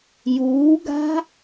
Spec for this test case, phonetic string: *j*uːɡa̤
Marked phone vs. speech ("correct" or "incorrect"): correct